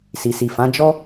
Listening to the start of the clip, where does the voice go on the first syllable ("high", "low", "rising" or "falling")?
low